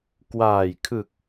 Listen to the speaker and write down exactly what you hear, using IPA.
k w aː˨˩ j kʰ ɯ˨˩ k̚

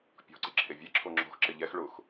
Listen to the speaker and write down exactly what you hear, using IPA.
pʲ ɔ̤ ǀ ɪ ǁʰ e vʲ ɛ ǁʰ o ŋ͡ǁ ɔ̤ x ǁ ɪ ʎ ɛ x ɭ ʊ x

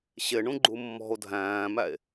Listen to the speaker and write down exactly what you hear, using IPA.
ɕ ɪ ɳ ũ ɡ͡ǃ u mː ɔ̤ o̯ dʱ æ̃ː m æ e̯

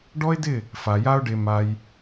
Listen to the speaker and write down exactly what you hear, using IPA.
ɖ ɔ˦ ɪ̯ d ɪ˦˨ | f a˨ j a˦ ʊ̯ ɖ e˧ m a˧ j

